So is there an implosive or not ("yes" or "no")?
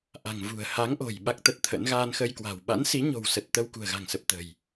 yes